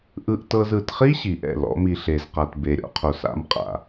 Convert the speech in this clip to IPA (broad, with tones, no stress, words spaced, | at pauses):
ʔɯ˧ʔtɤ˧z ɯ˨tχi˦ ɕi˨ʔɛ̰˦˨lɔ̰˨˦mi˧ ɬe˨zqa˨t be˨ɾʲɔ̰˦qʰo˨s a̰˧mqʼa̰˨